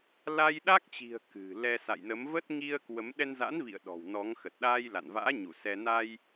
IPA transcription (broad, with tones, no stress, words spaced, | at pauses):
la˧jɗa˦˥k̚t͡ɕi̤˨˩ə̯ kɨ̤˨˩lɛ˧ sa̰˧˨jnə˨˦mvə˦˥t̚ ŋi˧ə̯kwə˨˦m ɗɛ˧nza̰˧˥nvḭ˧˨ə̯ ɗɔ̤˨˩w nɔ˨˦ŋ xə˨˩t̚ɗaː˧jla̰˧˨nva̰ː˧˥ ɲu˧˩ sɛ˧ na˧j